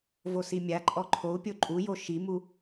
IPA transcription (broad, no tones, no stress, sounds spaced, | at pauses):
v o s i mʲ a ǃʼ ɔ ǃʰ o u̯ pʲ o ǃʼ u j o ʃ i m u